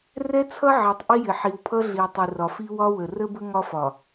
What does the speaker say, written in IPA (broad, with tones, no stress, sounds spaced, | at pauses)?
r ɛ˦ t͡sʰ ʌ˦ ʕ i˨ tˤ ʔ i˦ j ɪ˨ ħ i˨ w pʰ ʌ˦ ɮ i˨ tˤ i˨ r ɒ˨ f i˦ w ɒ˦ w ə˨ r ə˦ b ə˦ ŋ ɒ˦ f ɒ˨